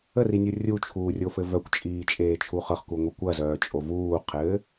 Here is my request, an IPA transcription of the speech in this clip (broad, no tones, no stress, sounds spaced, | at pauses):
ə r i nʲ u rʲ u t͡ʃʰ uː rʲ o f ɘ v œ kʷ t͡ʃʼ iː t͡ʃʼ eː t͡ʃʰ u χ ɤ χ k u ŋʷ i kʷ ɐ z œː t͡ʃʼ o v uː qʰ ɘː